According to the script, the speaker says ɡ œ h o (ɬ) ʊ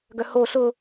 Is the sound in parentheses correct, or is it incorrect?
correct